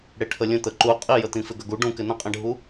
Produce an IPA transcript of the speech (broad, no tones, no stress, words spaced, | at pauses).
ɽeʈʰəlʲə̃ t̪əǃu qʼijət̪ĩ fɪɡəɡu ɖũkɪ nə̃qʼẽɖʱu